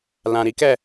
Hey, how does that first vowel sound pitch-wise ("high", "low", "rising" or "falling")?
low